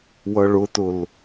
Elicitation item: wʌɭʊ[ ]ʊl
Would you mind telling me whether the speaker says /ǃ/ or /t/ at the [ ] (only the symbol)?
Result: t